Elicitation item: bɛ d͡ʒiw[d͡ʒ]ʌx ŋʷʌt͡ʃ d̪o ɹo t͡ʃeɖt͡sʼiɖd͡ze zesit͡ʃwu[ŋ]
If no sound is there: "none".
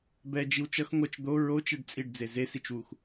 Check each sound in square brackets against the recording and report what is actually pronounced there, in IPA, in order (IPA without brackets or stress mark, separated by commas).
t͡ʃ, x